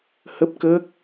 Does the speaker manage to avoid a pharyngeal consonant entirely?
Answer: yes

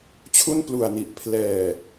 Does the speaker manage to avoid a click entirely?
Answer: yes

